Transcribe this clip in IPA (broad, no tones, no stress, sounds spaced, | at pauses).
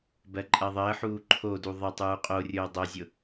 b ɜ ǃʼ ɜ ðˤ əː ħ uː ǃʰ o d u ðˤ ə tˤ uː qʼ o rʲ ʊː dˤ o zʲ ʊ